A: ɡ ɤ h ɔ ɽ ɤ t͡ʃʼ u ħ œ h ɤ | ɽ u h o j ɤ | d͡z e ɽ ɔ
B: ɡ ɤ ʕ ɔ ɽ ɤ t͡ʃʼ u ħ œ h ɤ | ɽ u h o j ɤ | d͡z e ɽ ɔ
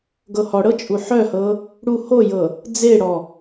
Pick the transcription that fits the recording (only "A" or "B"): A